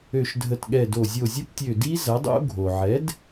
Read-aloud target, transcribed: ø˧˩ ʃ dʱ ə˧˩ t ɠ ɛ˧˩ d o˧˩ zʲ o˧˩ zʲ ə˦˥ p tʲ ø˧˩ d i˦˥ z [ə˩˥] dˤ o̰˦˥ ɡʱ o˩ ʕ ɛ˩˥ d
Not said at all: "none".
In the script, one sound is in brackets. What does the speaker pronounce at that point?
ɐ˩˥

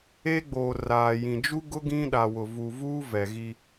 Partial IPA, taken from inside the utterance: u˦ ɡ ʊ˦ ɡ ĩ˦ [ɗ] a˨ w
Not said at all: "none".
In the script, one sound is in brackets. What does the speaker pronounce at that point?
ɗ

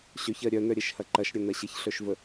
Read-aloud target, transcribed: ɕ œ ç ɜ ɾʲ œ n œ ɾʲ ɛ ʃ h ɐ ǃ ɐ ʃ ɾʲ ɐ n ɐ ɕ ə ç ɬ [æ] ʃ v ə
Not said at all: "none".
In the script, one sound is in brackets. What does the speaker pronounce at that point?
œ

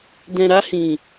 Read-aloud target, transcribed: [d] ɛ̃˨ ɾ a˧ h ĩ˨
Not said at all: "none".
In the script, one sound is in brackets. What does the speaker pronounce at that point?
d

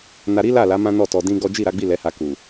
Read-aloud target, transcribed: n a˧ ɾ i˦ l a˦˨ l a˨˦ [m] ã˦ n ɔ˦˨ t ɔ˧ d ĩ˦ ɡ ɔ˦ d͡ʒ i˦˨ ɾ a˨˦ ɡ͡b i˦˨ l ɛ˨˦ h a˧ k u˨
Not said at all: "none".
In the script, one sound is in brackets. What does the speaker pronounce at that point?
m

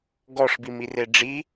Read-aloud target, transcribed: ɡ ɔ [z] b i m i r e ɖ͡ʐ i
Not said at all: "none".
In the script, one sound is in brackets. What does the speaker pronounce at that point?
ʂ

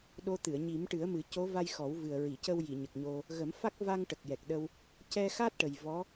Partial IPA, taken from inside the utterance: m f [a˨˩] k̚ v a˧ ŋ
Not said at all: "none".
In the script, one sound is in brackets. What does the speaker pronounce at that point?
a˦˥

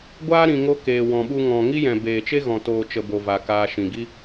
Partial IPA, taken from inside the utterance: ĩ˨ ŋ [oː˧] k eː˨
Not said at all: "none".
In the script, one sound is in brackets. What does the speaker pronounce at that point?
o˧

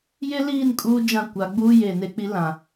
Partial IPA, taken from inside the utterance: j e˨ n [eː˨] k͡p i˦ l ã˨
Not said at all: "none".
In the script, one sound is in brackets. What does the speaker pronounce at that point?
e˨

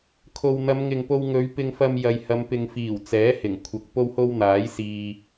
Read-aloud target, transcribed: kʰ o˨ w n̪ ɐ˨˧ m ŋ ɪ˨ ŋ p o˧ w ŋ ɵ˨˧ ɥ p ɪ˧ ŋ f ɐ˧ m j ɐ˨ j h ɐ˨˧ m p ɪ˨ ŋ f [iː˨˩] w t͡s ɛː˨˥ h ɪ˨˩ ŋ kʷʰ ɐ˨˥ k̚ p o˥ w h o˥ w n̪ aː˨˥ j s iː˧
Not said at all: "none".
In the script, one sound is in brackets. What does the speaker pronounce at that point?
iː˨˩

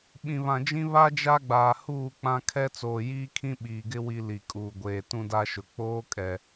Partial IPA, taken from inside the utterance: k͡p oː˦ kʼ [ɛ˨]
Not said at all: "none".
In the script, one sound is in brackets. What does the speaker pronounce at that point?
ɛ˨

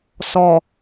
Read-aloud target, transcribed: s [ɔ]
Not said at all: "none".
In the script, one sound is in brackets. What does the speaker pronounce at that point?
ɔ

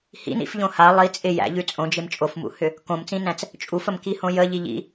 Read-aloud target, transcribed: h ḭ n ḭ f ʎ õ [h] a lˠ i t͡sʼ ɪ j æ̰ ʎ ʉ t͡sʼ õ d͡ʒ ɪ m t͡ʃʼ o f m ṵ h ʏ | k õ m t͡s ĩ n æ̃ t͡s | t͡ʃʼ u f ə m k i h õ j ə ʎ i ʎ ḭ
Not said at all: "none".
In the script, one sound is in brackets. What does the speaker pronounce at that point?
h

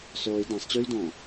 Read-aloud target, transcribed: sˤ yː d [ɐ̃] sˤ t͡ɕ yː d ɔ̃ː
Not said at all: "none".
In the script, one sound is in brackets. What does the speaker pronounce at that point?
ã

